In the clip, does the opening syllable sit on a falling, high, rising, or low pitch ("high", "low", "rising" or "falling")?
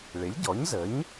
rising